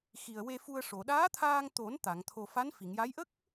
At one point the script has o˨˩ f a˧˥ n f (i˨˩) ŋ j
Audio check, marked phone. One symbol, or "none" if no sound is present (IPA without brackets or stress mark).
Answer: i˨˩˨